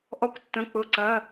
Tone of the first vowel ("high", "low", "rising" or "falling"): high